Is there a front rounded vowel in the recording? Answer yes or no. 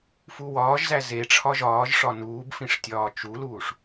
no